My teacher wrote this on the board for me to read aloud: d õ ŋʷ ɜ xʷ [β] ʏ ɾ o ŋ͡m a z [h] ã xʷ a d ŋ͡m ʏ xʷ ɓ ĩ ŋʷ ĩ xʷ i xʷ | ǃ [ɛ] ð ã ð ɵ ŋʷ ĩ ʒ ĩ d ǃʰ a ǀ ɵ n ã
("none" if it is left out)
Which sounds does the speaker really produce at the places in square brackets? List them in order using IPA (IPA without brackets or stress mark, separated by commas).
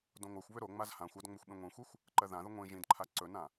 β, h, ɜ